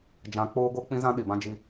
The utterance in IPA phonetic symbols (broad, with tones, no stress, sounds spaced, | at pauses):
d͡ʒ ã˨˦ k͡p oː˦ ɡ o˦ k͡p ĩ˦ z ã˦ ɗ i˨ b ã˦ d͡ʒ i˦